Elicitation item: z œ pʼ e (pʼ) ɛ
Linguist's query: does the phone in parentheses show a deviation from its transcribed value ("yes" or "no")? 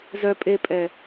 no